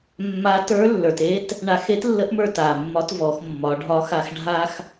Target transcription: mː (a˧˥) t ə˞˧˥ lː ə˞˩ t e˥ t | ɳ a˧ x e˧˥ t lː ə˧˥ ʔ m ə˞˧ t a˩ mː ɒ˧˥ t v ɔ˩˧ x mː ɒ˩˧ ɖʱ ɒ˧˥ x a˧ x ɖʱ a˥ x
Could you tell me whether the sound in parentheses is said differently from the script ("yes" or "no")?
no